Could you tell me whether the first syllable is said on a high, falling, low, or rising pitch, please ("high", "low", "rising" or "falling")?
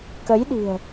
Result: rising